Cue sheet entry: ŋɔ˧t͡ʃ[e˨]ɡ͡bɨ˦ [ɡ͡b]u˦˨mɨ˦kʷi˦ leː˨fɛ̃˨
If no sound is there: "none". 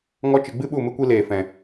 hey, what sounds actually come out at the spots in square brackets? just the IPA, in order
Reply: ɨ˨, ɓ

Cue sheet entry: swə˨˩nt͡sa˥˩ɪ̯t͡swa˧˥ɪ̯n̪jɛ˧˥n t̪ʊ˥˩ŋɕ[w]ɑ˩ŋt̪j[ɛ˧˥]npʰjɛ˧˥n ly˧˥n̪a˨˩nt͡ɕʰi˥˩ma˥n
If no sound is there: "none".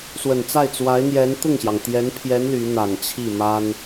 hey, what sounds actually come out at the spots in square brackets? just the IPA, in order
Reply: j, ɛ˧˥

